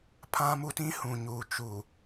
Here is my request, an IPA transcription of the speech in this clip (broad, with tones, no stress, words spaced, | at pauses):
pʰã˦mu˦tĩ˦ hũ˨ɲuː˨ t͡ʃuː˨